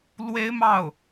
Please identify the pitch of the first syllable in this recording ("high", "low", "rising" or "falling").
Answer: high